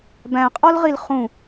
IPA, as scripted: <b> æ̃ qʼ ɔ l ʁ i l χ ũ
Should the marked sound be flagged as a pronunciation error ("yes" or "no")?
no